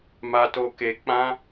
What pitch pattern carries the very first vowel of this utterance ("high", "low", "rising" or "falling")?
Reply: high